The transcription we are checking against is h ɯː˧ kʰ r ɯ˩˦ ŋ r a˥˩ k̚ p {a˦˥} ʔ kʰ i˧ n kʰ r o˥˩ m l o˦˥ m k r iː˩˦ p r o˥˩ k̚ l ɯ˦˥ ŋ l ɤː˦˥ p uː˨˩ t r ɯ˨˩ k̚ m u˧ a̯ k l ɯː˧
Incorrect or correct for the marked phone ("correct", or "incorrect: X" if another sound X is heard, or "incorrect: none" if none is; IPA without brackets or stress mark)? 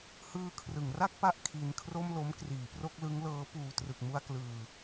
correct